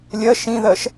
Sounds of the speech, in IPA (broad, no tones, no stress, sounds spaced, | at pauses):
lʲ ɜ ʃ ĩ ð ɜ ʃ